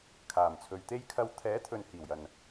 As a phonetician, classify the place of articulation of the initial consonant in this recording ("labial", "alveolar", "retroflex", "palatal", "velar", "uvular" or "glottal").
velar